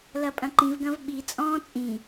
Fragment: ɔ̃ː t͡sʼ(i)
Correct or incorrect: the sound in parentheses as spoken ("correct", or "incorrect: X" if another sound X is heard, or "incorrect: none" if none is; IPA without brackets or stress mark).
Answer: incorrect: ĩ